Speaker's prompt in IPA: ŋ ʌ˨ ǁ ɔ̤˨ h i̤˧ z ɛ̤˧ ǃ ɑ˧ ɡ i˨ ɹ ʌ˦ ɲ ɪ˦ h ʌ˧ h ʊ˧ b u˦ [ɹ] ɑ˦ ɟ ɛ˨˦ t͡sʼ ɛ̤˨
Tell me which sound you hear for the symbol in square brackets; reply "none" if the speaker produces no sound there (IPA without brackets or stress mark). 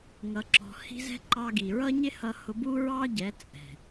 ɹ